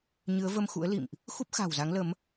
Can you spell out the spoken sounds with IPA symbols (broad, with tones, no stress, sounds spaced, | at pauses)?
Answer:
ɲ ɨ˨˦ ə̯ v ə˧ m x ṵ˧˥ ə̯ l ḭ˧˨ m ʔ | x u˦˥ p̚ x a̤ː˨˩ w z a˨˦ ŋ l ə˨˦ m